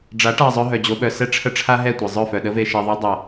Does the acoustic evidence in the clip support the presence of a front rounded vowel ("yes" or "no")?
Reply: yes